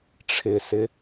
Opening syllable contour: low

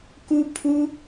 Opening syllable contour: high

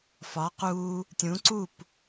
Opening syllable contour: rising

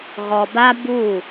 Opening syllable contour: low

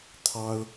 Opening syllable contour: high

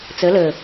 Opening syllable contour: rising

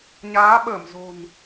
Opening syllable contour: rising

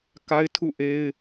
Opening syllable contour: high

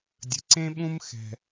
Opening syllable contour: low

